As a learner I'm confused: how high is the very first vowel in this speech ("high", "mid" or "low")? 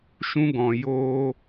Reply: high